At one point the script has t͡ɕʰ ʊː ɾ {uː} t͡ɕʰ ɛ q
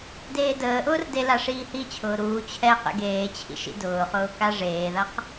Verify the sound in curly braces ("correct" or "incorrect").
correct